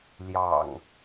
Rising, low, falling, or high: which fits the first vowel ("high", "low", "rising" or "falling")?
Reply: low